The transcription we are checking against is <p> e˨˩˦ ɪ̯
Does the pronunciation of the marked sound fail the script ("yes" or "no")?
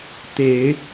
yes